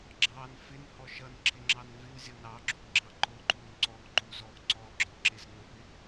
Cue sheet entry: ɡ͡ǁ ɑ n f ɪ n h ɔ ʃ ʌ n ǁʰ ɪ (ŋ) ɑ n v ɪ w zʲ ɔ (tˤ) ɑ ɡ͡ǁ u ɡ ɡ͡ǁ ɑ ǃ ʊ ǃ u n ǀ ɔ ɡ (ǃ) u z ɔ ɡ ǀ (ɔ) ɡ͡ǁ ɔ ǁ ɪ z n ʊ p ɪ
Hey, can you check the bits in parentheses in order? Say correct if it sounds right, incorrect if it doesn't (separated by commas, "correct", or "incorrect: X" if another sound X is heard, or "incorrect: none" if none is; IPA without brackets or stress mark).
incorrect: ŋ͡ǁ, incorrect: n, correct, correct